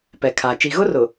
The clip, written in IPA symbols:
p ɛ˨ kʰ a˨ t͡ʃ i˨ ɣ ʊ˦ r ʊ˨

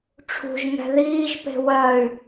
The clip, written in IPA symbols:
ʈ͡ʂʰ ṳ ʒ ŋ ɛ̤ ð iː ʒ p e̤ w ɜ y̯

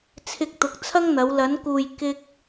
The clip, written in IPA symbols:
t͡sʰ ɪ˧ k̚ t̪ ʊ˨ k̚ t͡sʰ ɐ˥ ŋ n̪ ɐ˨˧ w l ɐ˨˧ n k uː˨ j k ɪ˥ k̚

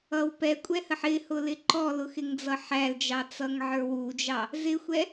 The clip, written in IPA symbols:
ʌ w p ɛ kʷʼ ɛ h ə ħ ɪ h ʊ l ɪ ǃ ɔ l ʊ x ɪ ŋ d͡z ʌ ħ æ l d͡ʒ ɑ t͡s ʌ ŋ ʕ ə˞ w u d͡ʒ ɑ | z ɪ xʷ ɛ

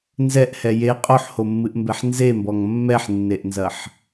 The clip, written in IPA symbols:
n z ɛ ʔ h ɛ j e qʼ o ħ h o mː ɨ ʔ m b ɛ ħ n z e m b ɔ ŋ mː ɛ ħ nː e ʔ n z ɐ ħ

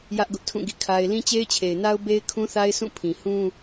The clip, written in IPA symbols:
j ä˦ ʔ ɡ ʊ˦ ʔ tʰ ũ˦˨ ɡ ḭ˦˨ kʰ a˦ ɪ̯ l ĩ˦ t͡ɕ e˦ ɪ̯ t͡ɕʰ e˨ ɪ̯ n a˦ ʊ̯ b e˦ ɪ̯ kʰ ũ˦ θ a˦ ɪ̯ s ũ˦˨ pʰ ĩ˨ h ũ˦

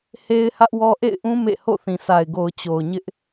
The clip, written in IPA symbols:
h e˦ ɪ̯ h ä˦ ʔ w ɔ˦ ʔ ḛ˦˨ ɪ̯ ʔ ũ˦ m ḛ˦˨ h o̰˦˨ θ ĩ˨ sʰ a˨ ɪ̯ ɡ o˨ ʊ̯ t͡ɕ o˨ ʊ̯ ɲ ɪ˦ ʔ

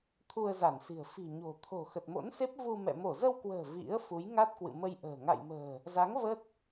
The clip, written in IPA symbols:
t̪ʰ u˧ ə̯ z a˧˩ n s i̤˨˩ ə̯ f i̤˨˩ ɲ o̤˨˩ t̪ʰ o̤˨˩ x ə˨˩ t̚ m o̰˧˥ n s e˦˥ p̚ v u˧ m ɛ̰˧˨ m o˧˩ z ə˧ w k w ə̤ː˨˩ v ḭ˧˥ ə̯ f u˨˦ j ŋ a˦˥ t̚ k w ɨ̰˧˨ m ə˧ j ʔ ə̤ː˨˩ ŋ a̰˧˨ j m ə̤ː˨˩ | z a˨˦ ŋ v ə˦˥ t̚

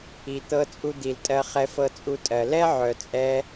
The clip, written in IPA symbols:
i˨ t̪ ɤ˧ t͡sʼ u˧ d̪ i˨ l tʼ ɜ˧ χ ɛ˧ f ɤ˧ t͡sʼ u˧ tʼ ɜ˨ l ɛ˦ ʕ œ˨ t͡sʼ ɛ˧

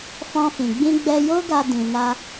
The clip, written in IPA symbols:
f ɔ̃˧ f ĩ˨ ɡ͡b ĩ˧ ɡ͡b ɛ˧ j o˦ ɡ a˧ d ĩ˨ n a˧

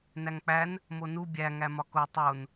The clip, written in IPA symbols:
n æ ŋ k͡p æ n | m o n u bʲ æ ŋ æ m ɒ k o tˤ o n

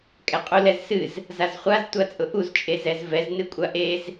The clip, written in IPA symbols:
kʼ ɛ qʼ u l ɛ z s ɨ z | z a z χʷ a z tʷ a t͡sʼ ʊ ʔ u z t͡ʃʼ e z ɛ z v ɛ z n ɨ kʷʼ a ʔ e z

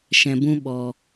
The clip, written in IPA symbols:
ʃ ɛ̃˧ b ũ˦ ɓ ɔ˧

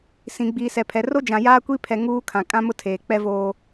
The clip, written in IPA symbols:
s ĩ˨ ɡ͡b iː˨ s ɛ˨ pʰ ɛ˨ r o˦ d͡ʒ ã˨ j aː˦ kʷ i˦ pʰ ɛ˨ ŋ uː˦ kʰ ã˨ kʼ ã˦ m ʊ˦ tʰ eː˨ k͡p ɛ˦ v oː˦

